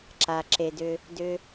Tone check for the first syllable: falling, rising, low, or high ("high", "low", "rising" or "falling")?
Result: low